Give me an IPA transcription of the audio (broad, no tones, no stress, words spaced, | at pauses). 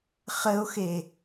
χəo̯xe